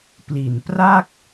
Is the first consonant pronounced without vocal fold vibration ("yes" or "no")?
yes